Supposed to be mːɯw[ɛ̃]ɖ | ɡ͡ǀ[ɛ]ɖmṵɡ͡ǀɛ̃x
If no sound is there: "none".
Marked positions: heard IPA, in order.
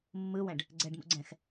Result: ɛ̃, ɛ

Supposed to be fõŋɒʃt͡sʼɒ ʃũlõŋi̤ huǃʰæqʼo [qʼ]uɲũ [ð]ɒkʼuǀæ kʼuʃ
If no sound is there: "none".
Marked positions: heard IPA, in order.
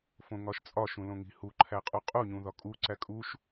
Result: qʼ, ð

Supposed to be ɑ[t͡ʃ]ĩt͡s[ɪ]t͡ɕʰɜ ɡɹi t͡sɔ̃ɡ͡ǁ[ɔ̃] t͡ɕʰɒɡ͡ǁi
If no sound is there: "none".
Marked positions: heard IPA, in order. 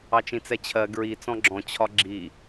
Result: t͡ʃ, ɛ, ɔ̃

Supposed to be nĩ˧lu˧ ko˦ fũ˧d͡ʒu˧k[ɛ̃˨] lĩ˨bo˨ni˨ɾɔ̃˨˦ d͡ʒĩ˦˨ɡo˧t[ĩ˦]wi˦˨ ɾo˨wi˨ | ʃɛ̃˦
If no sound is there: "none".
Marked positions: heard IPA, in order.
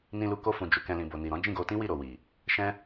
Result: ɛ̃˧, ĩ˦

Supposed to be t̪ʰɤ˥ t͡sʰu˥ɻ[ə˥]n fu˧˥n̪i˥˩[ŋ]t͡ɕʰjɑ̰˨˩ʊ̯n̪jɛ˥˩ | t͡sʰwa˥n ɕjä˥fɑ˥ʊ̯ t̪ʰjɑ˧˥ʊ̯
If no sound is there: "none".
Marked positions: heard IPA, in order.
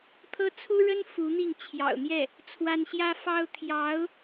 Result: ə˥, ŋ

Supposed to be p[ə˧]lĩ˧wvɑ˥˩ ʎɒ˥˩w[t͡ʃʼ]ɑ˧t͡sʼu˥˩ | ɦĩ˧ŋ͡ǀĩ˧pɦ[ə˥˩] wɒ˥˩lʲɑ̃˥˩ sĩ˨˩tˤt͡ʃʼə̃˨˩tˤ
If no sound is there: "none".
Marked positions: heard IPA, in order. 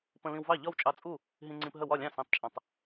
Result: ə̃˧, t͡ʃʼ, ə˥˩

